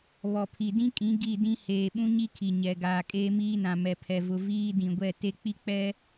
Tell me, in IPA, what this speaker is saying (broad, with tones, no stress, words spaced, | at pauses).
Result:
βɔ˨pʰi˨dĩ˦kʼĩ˨˦ ɡi˦˨dĩ˦ heː˨ɓũ˦ɲi˦ kʰi˨ ɲɛ˨ ɡaː˨kʼeː˦miː˦nã˨ mɛ˨pʰɛ˨ vʊ˨ viː˦ dĩ˨ɡʷɛ˦˨ te˦ k͡pi˦k͡pɛ˦